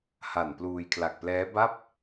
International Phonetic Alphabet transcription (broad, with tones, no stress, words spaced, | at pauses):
ha˨˩npluː˧jkʰla˨˩k̚plɛː˦˥ ba˥˩p̚